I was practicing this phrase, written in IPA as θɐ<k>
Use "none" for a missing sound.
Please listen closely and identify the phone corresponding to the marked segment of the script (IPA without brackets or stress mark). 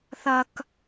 k